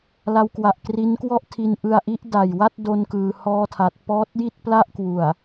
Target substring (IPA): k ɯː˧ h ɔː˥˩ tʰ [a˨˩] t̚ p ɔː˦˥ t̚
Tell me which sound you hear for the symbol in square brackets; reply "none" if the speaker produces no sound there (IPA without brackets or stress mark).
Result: a˦˥